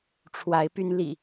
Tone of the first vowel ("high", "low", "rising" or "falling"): rising